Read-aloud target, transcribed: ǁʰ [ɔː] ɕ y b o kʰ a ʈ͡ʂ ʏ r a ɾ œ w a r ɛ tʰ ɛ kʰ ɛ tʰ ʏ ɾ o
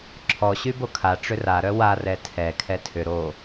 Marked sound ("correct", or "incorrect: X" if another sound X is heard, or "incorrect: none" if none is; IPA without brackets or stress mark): incorrect: ɔ